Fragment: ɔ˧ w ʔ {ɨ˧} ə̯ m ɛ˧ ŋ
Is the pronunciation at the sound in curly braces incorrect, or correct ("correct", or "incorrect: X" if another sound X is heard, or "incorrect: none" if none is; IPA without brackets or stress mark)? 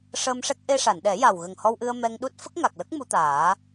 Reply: correct